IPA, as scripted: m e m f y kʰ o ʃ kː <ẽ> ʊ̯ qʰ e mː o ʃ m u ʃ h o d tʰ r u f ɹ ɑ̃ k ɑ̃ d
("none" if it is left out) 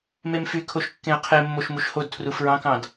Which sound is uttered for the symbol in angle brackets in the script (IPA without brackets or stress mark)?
ẽ